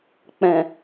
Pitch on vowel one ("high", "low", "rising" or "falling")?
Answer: low